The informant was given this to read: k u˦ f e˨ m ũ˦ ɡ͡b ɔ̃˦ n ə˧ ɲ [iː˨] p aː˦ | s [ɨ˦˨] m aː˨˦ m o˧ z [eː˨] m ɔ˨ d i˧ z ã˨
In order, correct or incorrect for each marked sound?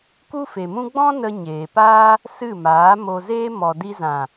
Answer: incorrect, correct, incorrect

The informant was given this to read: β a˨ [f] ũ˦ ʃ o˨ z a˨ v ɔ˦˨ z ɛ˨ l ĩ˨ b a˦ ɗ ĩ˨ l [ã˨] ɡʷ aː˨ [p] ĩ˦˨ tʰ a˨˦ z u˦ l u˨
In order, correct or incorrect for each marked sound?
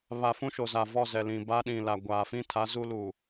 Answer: correct, incorrect, incorrect

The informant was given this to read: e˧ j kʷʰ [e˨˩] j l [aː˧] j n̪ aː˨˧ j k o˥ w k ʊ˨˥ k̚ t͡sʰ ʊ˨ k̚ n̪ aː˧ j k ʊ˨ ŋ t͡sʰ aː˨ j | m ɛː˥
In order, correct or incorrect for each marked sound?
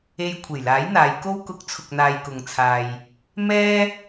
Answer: correct, incorrect

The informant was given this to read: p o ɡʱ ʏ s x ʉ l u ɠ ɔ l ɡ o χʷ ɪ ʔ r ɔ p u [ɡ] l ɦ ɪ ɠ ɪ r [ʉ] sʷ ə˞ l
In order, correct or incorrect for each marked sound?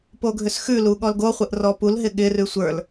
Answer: incorrect, correct

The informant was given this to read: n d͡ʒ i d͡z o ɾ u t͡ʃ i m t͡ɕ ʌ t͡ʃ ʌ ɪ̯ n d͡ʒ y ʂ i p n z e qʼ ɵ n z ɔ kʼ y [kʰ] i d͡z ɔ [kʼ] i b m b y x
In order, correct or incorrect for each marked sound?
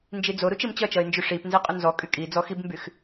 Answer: incorrect, incorrect

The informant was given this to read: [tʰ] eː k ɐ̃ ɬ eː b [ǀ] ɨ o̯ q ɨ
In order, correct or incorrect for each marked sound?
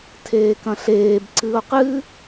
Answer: correct, correct

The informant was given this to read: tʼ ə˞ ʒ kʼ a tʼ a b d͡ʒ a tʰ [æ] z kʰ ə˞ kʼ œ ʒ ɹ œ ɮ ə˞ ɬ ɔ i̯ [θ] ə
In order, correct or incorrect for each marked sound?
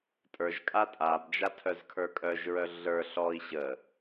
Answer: incorrect, incorrect

